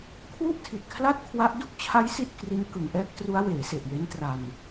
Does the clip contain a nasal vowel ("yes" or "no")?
no